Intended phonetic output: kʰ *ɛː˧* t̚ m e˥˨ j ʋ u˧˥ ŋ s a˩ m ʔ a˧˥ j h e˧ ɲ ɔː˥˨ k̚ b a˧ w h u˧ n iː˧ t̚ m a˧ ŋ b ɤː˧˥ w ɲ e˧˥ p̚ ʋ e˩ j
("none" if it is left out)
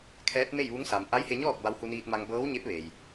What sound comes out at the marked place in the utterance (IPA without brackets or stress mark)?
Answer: ɛː˧˥